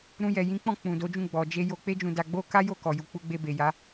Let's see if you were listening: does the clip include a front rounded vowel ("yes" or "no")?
no